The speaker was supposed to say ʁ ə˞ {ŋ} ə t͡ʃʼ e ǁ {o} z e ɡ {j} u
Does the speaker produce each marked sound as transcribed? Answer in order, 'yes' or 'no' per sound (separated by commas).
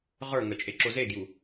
yes, yes, yes